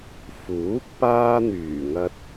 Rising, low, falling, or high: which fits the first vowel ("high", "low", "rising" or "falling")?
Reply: rising